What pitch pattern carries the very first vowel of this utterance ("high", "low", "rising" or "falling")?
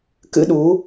rising